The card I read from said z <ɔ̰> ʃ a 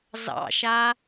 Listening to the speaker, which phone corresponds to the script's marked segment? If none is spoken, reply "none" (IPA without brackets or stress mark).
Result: ɑ̰